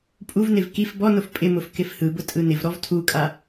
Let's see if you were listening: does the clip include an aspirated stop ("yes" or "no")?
yes